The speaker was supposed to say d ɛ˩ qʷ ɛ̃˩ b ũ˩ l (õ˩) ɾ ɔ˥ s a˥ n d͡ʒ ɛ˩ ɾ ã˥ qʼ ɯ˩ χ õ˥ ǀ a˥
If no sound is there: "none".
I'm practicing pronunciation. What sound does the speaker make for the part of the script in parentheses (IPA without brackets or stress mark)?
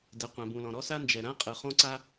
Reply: ɔ̃˩